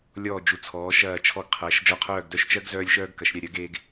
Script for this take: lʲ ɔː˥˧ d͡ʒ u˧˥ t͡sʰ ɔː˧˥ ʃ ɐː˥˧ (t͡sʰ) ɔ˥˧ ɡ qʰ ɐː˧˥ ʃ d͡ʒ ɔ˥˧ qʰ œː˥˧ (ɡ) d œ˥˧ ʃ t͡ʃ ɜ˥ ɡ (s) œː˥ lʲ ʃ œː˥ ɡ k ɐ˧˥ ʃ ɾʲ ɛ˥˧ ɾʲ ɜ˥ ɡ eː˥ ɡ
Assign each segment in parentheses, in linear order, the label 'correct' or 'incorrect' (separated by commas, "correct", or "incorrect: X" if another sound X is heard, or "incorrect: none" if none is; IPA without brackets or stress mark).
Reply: incorrect: t͡ʃʰ, correct, incorrect: z